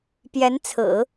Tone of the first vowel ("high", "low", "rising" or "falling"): rising